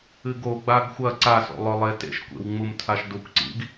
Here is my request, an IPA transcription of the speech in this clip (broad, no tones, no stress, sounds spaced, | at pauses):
ɨ ɡ o ɡ͡b a ɡ xʷ ɐ ǀ a s o̰ lˠ ɵ lˠ e t ḛ ʃ kʷ ḛ w ŋ͡m u m tʰ a ʃ d u kʷ ǀ ḭ ɡ